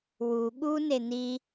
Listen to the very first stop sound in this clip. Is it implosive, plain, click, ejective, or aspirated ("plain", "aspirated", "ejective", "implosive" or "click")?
implosive